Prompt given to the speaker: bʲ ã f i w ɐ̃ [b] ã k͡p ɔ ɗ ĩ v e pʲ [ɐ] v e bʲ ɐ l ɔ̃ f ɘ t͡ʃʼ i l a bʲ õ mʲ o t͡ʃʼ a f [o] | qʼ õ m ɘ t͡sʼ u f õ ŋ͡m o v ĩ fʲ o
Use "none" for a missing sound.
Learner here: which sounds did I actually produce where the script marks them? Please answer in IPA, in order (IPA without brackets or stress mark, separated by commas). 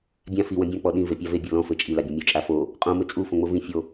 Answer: bʲ, a, o